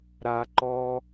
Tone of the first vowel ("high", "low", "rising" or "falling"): high